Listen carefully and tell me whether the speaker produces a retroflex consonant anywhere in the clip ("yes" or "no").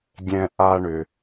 yes